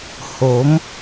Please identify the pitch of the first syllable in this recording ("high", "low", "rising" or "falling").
rising